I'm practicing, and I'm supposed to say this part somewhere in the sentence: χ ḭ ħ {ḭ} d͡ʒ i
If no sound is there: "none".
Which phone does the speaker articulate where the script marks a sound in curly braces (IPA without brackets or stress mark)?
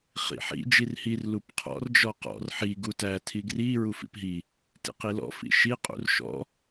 ḭ